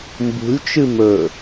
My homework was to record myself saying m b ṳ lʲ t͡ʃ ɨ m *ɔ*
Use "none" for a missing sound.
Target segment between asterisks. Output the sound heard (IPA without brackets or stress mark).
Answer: ɵ